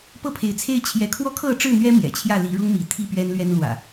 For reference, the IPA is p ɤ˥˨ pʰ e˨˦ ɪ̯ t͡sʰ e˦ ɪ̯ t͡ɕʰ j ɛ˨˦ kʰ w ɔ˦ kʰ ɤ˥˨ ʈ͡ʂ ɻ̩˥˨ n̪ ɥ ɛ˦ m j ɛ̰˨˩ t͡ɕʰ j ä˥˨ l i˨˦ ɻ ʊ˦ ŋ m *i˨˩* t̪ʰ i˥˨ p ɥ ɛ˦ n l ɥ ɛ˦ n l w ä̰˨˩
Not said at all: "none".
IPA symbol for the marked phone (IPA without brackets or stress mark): i˨˦